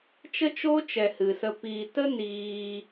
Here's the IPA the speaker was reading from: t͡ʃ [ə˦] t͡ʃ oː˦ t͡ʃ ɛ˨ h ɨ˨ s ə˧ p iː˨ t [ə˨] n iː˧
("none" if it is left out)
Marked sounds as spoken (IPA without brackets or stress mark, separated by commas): ə˦, ə˦